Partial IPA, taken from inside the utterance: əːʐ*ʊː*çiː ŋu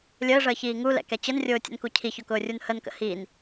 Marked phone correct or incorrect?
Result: incorrect